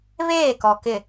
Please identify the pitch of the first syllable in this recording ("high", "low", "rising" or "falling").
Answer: falling